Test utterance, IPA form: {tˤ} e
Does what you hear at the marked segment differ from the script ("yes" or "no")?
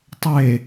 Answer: no